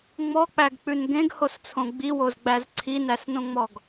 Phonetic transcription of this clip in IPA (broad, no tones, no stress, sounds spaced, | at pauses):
ŋ͡m ɔ k͡p æ ɡ k͡p ʉ n ɡ ẽ ɡ h o s t͡sʰ õ ɡ͡b i w o z ɡ͡b æ z ǀʰ i n æ s n õ ŋ͡m ɔ ɡ